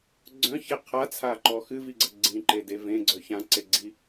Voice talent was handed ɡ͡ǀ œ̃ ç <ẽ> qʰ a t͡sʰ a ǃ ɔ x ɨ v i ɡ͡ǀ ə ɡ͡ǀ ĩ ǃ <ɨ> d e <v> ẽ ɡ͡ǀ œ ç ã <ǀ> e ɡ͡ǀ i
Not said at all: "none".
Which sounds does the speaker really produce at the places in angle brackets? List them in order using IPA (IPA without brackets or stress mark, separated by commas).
e, e, v, ǀ